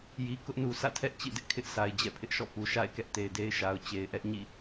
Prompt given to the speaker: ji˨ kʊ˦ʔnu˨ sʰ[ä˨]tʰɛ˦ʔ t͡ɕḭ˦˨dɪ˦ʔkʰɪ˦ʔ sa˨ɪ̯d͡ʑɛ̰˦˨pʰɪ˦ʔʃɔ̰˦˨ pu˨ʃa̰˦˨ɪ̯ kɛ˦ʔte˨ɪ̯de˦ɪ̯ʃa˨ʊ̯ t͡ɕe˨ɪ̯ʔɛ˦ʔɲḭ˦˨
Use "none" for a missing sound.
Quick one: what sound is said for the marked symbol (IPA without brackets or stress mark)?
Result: ä̰˦˨